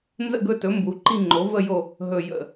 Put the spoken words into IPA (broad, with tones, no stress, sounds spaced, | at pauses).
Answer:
n z ə̰˦˨ ɡ ɵ˦˨ t ɵ˩˥ m b u˩˥ ǃ i˦˨ ŋ͡ǃ o˩˥ v ə˦˨ j o˦˨ | ɦ ɵ˦˨ j ə̰˦˨